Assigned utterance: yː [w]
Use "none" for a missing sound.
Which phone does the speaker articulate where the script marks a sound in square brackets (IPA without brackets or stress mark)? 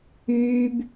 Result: b